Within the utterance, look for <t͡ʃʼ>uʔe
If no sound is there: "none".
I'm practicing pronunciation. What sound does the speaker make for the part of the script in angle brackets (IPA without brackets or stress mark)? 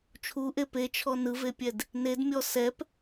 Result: t͡ʃʰ